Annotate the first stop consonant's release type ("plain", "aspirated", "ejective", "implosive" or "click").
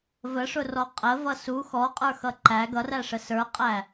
ejective